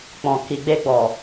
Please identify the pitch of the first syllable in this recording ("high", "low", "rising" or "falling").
low